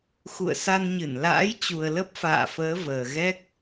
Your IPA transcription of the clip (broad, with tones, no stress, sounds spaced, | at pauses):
x ṵ˧˨ ə̯ s a˧ n ɲ ɨ˧˩ n l a̰ː˧˥ j t͡ɕ u˨˩ ə̯ l ə˦˥ p̚ f a̰ː˧˨ f əː˨˦ v əː˨˩ ɣ ɛ˦˥ k̚